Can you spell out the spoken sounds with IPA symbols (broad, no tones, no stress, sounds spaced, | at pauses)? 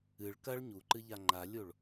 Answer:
ɨ ɭ k ɐ ɭ ɲ u ǃ ɨ ʎ a ŋ͡ǃ a lʲ o ɭ